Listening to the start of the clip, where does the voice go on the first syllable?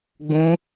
high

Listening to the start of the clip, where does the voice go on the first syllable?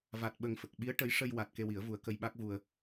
low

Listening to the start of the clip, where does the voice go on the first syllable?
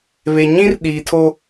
low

